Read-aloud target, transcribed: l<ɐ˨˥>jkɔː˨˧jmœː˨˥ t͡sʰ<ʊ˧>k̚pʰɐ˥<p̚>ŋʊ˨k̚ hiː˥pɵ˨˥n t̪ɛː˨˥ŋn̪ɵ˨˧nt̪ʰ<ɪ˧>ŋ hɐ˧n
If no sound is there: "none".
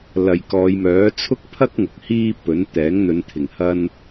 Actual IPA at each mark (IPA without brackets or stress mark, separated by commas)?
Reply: ɐ˨, ʊ˥, k̚, ɪ˨˩